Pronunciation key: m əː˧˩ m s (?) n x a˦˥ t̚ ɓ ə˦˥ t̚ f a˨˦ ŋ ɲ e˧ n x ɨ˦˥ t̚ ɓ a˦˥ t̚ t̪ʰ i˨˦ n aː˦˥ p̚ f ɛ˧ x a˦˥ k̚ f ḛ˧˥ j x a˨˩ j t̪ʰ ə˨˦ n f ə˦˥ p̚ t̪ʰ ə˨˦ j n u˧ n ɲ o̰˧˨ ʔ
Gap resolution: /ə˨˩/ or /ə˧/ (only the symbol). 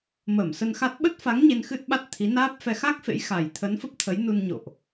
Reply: ə˧